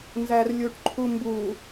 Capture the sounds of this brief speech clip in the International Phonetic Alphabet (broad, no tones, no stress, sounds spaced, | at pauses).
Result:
n z æ r lʲ u ʈ ǃʰ u m b u